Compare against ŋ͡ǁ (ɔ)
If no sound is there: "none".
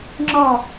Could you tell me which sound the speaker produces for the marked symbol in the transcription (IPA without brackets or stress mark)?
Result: ɔ